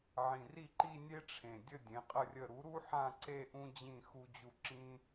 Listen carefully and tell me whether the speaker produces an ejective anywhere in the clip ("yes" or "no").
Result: yes